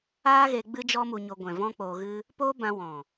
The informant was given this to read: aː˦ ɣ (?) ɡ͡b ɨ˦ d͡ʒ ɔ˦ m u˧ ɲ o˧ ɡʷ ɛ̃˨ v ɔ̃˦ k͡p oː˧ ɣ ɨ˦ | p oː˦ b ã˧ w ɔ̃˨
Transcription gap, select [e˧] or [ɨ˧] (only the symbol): e˧